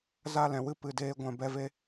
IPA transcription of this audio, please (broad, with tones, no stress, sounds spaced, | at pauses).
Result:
z a˦˨ l ɛ̃˨ w ɨ˦ p ɨ˧ d eː˦ ɡʷ ɛ̃˧ b ɛ˧ v e˦